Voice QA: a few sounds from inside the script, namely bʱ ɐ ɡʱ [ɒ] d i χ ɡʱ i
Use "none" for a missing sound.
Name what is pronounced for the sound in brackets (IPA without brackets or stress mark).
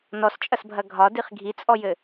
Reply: ɒ